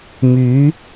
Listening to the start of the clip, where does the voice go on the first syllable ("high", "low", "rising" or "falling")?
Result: rising